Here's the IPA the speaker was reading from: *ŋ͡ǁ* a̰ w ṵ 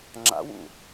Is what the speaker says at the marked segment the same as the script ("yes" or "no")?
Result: yes